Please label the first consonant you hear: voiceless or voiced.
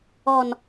voiced